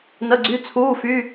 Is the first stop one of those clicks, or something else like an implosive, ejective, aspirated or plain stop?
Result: click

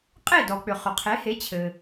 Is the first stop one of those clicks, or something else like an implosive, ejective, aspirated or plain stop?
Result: ejective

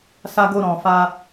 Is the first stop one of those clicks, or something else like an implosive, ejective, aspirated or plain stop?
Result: plain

